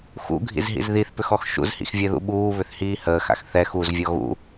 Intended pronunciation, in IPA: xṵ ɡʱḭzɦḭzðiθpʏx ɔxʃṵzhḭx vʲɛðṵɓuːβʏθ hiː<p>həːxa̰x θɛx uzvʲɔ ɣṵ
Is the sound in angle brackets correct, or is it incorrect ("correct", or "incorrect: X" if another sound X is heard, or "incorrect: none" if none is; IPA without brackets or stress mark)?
incorrect: none